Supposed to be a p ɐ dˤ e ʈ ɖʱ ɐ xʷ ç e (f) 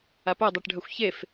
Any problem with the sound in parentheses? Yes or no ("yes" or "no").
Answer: no